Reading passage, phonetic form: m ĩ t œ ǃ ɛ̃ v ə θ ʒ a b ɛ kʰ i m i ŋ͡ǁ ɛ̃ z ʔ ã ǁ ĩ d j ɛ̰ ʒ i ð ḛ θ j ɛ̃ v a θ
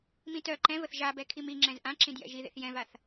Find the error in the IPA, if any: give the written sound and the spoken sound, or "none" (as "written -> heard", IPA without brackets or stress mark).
none